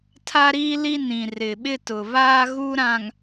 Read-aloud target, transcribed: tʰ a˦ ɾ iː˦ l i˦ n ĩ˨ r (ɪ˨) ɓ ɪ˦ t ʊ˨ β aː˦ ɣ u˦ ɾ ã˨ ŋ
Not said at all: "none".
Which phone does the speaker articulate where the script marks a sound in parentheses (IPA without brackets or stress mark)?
ɪ˨